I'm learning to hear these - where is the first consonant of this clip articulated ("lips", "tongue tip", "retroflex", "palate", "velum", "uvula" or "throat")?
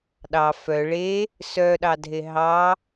tongue tip